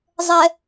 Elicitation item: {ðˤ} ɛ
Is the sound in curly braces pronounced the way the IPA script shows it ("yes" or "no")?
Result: no